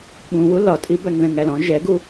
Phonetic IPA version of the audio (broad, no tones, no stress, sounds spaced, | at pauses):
ɓ ũ w u l ɒ tʼ i b æ ŋ ð ɛ̃ ŋ æ l ɔ̃ ʒ ɛ ɡ u